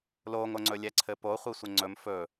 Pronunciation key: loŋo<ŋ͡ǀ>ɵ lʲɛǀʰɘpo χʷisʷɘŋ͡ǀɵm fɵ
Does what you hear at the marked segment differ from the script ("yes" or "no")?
no